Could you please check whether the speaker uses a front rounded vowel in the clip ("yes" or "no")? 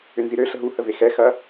yes